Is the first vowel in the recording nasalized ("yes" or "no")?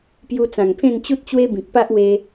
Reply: no